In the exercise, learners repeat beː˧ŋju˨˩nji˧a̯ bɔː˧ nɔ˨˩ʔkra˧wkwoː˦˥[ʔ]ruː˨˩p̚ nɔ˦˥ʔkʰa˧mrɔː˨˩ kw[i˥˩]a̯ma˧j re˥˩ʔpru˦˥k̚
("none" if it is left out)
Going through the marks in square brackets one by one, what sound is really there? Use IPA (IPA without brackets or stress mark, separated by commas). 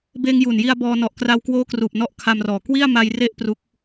k, i˥˩